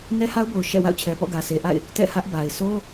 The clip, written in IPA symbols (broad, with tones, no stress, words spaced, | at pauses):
nɛ˦ha˦ʊ̯bo˨ʊ̯ ʃɛ̰˦˨ wa̰˦˨ʊ̯t͡ɕʰɛ˨pɔ̰˦˨ ɡä˨sʰe˨ʔa̰˦˨ɪ̯ | tɛ̰˦˨hä˦ʔba˨ɪ̯ so˦